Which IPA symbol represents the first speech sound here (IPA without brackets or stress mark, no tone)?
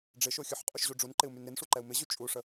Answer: ɖ͡ʐ